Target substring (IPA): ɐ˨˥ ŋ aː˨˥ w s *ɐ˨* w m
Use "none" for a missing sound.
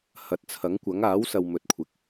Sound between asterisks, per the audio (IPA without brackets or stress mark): ɐ˨